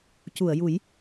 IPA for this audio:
cu˨˩˨ə̯ju˨˩˦j

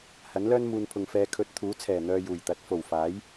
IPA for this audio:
hɐ˨˥nlœː˥n muː˨npʰʊ˨ŋ fɛː˨˧kʰɵ˨˥t̚ t̪ʰuː˨˥t͡sʰɛː˨˩ n̪œː˧juː˨˩jt̪ɐ˨˥t̚ fo˨˩w faː˨˥j

